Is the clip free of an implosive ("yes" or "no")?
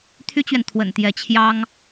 yes